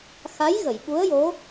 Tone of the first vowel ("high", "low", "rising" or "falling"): rising